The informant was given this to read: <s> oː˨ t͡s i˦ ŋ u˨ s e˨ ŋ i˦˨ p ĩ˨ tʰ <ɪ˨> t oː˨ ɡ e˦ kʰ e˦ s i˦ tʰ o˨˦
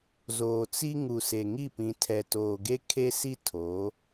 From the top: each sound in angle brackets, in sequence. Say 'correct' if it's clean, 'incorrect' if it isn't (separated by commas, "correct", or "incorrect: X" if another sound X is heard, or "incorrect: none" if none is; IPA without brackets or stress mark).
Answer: incorrect: z, incorrect: ɛ˨